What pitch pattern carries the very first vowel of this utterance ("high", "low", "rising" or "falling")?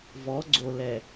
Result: rising